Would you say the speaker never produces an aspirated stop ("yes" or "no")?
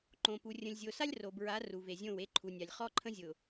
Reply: no